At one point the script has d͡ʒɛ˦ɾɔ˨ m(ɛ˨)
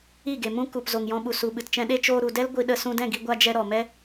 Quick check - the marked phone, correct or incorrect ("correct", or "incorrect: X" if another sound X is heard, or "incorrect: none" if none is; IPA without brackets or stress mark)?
incorrect: ɛ˦